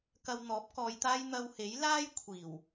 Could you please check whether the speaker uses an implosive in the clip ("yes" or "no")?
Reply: no